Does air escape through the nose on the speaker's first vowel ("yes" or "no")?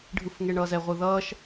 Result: no